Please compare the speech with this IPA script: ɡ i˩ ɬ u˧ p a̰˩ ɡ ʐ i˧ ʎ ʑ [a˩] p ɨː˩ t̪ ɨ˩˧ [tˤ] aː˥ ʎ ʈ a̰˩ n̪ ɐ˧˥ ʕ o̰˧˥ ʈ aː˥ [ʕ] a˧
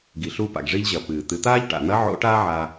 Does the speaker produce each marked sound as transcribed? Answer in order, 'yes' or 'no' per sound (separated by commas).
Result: no, no, yes